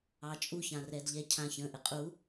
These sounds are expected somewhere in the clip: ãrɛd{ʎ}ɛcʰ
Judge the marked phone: correct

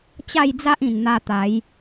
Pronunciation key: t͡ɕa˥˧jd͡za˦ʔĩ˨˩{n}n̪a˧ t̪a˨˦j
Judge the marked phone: correct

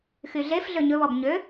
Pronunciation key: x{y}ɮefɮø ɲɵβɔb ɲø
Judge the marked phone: correct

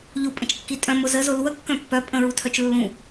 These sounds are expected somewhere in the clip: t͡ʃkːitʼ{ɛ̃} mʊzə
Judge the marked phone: incorrect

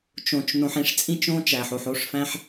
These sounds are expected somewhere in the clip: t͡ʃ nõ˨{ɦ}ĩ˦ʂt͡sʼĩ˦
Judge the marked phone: incorrect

